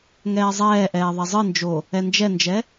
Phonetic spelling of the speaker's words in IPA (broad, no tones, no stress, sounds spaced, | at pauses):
ŋ ɛː zˤ ɛː ʔ ɛː ðˤ ɛ zˤ ɨ n d͡ʒ o | ɛ n d͡ʒ ɛ n d͡ʒ ɛ